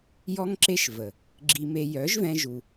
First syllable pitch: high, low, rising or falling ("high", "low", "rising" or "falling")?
high